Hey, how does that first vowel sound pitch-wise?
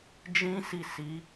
high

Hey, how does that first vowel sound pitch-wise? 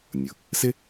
low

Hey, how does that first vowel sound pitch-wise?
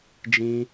high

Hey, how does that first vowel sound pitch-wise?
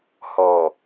low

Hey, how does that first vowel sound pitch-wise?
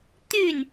falling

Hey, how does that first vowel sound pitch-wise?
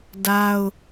high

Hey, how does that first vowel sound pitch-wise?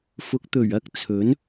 rising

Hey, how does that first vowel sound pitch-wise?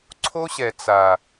high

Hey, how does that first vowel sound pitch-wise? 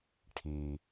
low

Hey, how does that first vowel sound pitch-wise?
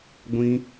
high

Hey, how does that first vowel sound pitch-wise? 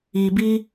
low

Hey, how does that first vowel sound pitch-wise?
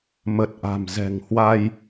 low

